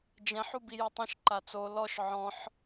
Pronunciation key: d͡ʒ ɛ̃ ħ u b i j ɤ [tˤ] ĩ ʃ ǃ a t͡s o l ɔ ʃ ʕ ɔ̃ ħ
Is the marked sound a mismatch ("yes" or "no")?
no